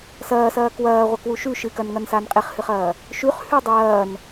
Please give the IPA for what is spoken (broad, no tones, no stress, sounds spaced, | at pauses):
s ɐː s ɐː k w ɐː ʁʷ ɐ k w u ʃ ʉ ʃ ɨ k ɐ n ŋ ɐ n s a n qʼ e χ h ɨ χ ɐː | ʃ ʉ χ h ʉ dˤ ɐː n